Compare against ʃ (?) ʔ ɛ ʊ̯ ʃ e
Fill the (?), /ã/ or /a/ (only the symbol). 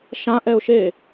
ã